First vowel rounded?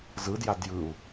no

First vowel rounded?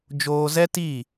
yes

